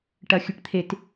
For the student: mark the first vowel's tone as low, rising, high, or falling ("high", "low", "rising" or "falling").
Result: falling